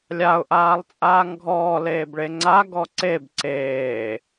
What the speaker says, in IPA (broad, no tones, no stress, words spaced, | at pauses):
lʲaʊ̯ʔaːlˠt͡sʼaːŋ ɡʱɔːleːbɭe ŋ͡ǀaɡɔ ǀeb ǀeː